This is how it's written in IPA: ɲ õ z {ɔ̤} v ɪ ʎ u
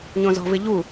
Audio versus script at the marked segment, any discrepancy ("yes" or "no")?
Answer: no